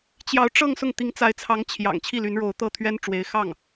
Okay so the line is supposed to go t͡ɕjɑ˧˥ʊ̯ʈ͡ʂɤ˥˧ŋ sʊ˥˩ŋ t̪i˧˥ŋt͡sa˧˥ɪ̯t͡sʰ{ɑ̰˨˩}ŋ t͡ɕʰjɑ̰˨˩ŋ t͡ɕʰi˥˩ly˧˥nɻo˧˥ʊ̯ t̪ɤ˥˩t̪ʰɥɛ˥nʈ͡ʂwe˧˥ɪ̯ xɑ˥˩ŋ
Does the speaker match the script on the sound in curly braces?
no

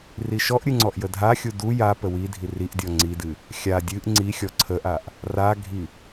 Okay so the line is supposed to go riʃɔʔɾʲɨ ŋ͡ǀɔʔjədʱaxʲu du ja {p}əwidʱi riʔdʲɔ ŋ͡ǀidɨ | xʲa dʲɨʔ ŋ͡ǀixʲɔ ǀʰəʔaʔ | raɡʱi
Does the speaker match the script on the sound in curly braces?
yes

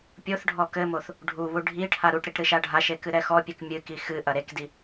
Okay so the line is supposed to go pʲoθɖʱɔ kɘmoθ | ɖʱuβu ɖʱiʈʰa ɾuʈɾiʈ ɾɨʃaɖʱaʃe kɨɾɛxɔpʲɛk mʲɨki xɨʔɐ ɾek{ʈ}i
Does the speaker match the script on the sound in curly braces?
no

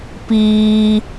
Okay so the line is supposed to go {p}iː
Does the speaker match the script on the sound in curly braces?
yes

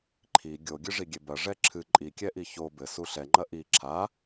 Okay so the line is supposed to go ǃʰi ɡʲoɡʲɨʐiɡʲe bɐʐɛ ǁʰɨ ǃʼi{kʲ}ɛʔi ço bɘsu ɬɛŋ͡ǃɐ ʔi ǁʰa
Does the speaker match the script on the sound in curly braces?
yes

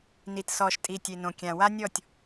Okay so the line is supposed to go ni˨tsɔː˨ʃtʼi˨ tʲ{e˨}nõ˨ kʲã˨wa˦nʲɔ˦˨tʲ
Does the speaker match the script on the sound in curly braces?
yes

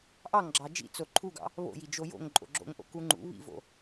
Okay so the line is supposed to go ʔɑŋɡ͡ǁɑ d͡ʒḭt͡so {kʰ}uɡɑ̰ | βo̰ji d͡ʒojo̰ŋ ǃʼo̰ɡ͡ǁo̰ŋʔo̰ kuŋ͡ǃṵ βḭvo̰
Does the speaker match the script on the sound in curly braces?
no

